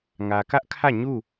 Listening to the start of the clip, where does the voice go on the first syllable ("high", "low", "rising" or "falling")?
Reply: low